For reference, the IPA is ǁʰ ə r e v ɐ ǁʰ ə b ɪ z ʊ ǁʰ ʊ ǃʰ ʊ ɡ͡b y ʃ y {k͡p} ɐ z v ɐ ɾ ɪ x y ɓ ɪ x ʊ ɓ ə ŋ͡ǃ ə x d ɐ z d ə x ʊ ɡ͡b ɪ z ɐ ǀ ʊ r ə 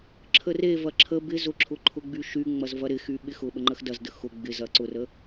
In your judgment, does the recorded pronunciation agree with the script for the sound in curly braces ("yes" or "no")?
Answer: no